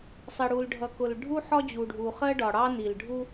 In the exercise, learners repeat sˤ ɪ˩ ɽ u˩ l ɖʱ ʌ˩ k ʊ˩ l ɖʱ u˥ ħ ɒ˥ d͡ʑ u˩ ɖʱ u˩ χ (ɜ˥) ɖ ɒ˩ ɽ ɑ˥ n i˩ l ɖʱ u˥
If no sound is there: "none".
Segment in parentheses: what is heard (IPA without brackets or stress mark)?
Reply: ɜ˥